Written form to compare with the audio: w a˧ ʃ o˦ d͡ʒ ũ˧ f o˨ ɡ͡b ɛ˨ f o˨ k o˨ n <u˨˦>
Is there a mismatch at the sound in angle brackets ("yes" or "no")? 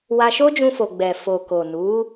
no